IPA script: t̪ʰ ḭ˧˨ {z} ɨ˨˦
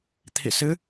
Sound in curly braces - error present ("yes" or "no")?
yes